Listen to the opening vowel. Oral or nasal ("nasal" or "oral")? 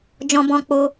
nasal